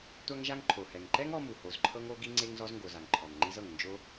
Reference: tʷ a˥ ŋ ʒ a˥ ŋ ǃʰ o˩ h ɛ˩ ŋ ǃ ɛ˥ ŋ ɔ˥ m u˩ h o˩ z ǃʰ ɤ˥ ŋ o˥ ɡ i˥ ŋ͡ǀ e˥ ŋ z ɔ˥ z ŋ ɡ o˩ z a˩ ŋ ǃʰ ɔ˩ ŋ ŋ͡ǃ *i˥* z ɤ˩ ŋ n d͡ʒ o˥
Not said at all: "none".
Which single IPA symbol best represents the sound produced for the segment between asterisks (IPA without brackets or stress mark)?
i˥